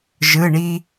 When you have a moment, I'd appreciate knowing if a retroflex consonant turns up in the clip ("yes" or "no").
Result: yes